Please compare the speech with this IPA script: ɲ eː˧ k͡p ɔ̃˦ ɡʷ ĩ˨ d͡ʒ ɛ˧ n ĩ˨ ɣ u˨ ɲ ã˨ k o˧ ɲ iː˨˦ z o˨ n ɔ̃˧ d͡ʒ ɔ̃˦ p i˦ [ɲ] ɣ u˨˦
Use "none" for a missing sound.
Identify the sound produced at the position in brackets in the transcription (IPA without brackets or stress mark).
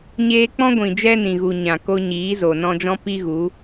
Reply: none